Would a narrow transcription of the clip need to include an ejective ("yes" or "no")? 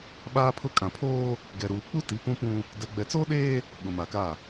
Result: yes